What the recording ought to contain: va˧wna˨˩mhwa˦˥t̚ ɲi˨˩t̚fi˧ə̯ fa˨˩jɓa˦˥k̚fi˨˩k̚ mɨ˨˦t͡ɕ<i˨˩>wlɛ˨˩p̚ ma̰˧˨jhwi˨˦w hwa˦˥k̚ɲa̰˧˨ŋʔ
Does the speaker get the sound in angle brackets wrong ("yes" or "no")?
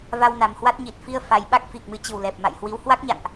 yes